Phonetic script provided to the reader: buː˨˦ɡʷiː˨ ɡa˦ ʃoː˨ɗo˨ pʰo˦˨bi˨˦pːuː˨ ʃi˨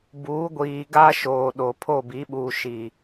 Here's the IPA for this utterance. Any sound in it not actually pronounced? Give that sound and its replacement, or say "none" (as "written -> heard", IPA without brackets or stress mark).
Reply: pː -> ɓ